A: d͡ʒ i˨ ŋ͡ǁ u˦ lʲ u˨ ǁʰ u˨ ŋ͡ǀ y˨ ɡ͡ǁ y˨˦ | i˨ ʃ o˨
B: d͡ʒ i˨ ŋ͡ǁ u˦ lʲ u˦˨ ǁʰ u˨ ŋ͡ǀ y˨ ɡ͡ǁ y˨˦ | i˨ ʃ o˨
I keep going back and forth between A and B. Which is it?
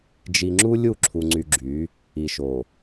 B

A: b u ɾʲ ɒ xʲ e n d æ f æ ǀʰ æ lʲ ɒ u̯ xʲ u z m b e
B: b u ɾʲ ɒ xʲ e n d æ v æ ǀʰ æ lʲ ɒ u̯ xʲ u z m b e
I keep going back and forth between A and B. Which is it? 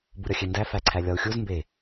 A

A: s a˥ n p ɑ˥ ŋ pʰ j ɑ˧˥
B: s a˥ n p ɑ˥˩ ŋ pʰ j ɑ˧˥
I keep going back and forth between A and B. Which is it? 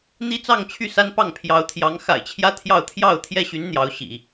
B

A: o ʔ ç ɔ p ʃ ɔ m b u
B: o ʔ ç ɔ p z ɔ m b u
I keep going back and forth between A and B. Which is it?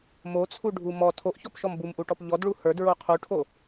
A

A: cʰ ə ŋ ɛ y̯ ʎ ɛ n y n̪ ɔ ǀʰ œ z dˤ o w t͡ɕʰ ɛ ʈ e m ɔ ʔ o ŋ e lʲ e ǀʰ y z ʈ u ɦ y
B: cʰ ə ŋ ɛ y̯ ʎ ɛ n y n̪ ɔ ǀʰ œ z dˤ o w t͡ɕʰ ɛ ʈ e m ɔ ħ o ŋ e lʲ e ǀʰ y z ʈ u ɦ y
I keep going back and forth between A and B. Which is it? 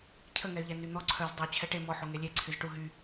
B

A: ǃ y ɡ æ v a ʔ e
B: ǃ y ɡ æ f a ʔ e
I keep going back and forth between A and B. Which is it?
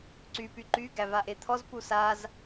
A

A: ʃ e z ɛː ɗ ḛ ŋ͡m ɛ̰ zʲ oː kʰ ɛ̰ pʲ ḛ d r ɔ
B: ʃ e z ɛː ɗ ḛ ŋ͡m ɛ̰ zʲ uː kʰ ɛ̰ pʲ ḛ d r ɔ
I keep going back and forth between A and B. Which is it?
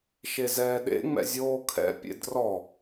A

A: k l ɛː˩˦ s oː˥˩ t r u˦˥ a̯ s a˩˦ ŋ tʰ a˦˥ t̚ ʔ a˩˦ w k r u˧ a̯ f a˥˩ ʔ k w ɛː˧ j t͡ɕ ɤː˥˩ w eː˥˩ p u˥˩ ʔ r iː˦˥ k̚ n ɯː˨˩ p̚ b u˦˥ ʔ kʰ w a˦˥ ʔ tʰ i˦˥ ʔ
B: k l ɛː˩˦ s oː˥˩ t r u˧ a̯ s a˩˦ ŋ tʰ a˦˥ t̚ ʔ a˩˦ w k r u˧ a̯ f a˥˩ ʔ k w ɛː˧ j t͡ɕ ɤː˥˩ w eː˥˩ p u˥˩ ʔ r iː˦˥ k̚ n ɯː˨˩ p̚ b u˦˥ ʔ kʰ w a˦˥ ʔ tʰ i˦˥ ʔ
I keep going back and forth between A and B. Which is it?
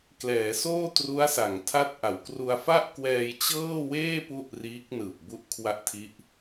A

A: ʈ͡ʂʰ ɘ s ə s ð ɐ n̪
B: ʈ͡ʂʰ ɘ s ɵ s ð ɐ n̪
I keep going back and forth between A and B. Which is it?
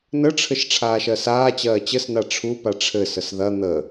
A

